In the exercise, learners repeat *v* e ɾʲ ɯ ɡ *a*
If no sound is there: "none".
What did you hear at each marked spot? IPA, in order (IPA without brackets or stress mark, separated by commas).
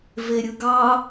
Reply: v, ɑ